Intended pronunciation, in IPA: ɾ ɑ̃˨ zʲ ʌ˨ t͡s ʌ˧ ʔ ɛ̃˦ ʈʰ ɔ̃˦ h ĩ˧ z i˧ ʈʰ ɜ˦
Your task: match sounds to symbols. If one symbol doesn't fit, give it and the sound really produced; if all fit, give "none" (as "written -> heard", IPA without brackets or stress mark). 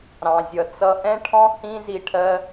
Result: none